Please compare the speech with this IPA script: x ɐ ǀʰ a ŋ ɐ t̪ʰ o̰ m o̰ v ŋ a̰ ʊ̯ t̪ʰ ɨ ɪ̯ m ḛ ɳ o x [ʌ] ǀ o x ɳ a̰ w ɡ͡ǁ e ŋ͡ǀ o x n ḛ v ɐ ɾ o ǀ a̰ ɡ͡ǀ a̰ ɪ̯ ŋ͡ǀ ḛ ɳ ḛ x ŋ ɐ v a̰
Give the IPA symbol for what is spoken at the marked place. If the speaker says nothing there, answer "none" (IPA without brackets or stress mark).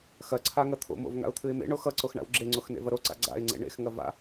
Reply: ʌ